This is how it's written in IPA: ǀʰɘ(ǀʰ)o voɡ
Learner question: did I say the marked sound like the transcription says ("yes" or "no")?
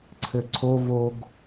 yes